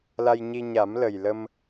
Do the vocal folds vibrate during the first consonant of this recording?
yes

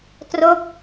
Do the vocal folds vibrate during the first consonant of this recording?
no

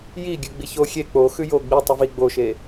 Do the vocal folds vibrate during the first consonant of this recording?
yes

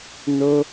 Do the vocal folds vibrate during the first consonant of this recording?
yes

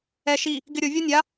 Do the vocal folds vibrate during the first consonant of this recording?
no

